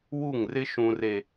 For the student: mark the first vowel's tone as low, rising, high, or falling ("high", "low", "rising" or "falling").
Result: falling